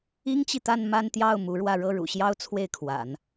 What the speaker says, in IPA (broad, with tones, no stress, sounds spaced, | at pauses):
i˥ ŋ t͡ɕ i˨ t̪ a˥˧ n m a˥˧ n t̪ j ɑ˥˩ ʊ̯ m u˧˥ ɻ w ä˥˧ ɻ ɤ˥˩ ɻ ṵ˨˩ ɕ j ɑ˥ ʊ̯ t͡sʰ w e˥˩ ɪ̯ kʰ w a̰˨˩˦ n